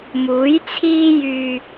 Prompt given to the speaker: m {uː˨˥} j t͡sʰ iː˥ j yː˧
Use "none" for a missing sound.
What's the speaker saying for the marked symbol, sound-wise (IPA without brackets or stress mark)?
uː˨˥